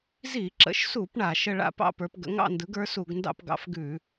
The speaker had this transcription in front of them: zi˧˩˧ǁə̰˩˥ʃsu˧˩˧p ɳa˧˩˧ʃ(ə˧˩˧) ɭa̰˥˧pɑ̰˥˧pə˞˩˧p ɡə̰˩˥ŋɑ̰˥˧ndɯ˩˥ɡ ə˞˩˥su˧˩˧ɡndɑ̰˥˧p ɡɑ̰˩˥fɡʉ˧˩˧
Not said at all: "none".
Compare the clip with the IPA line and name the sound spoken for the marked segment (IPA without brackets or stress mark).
ə˥˧